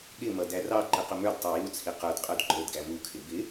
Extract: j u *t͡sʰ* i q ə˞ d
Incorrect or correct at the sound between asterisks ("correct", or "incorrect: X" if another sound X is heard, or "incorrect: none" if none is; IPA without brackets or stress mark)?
correct